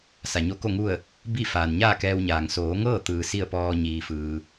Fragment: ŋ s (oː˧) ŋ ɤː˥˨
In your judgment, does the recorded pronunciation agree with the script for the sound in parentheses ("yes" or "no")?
no